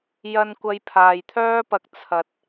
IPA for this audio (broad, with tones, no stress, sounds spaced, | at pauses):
j ɐ˥ n kʷ ɐ˧ j pʰ aː˨ j t̪ʰ œː˥ p ɐ˧ k̚ t͡sʰ ɐ˧ t̚